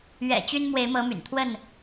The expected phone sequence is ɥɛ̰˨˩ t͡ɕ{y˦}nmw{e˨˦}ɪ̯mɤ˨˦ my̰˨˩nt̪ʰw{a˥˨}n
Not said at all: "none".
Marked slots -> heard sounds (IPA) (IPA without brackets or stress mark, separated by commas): y˦, e˨˦, ə˥˨